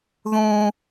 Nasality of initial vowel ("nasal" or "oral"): nasal